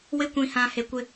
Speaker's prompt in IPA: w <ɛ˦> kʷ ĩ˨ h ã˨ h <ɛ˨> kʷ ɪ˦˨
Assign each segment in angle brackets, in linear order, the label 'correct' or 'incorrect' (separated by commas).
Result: incorrect, incorrect